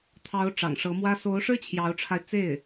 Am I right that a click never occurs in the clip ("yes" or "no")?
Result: yes